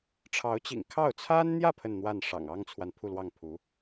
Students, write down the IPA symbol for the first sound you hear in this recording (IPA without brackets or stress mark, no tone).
ʈ͡ʂʰ